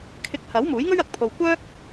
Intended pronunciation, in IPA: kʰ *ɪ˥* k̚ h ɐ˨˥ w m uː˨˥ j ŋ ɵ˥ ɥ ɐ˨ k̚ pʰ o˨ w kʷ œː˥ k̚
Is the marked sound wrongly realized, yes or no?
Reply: yes